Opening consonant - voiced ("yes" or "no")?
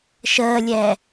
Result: no